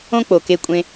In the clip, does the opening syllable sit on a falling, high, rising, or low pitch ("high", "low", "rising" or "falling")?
high